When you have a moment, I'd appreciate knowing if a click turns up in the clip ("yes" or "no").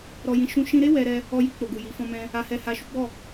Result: no